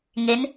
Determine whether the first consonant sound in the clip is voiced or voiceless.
voiced